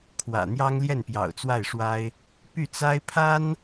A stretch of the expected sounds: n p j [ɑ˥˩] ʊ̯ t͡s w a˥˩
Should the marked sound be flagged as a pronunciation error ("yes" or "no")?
yes